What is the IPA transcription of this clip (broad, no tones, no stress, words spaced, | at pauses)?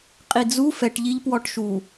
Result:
qʼid͡zu fɛʈʎiʎ pwɔʈʃu